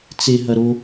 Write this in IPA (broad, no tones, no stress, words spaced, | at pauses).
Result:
t͡seɦɐ ɾo